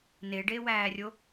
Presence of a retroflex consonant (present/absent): present